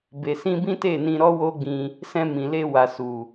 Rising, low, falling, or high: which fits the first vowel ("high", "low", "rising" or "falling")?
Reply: low